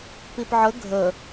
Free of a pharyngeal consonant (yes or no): no